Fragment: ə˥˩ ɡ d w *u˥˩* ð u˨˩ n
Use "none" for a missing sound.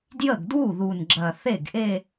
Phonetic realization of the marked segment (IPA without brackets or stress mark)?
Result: u˥˩